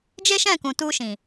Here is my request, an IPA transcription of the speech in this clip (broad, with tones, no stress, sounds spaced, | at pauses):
d͡ʒ e˦ ʃ ɛ̃˦˨ k ũ˨ t u˧ ʃ ĩ˨